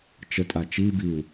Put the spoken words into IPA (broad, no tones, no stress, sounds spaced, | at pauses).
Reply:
t͡ʃ ə tʼ a t͡ʃ i b i u̯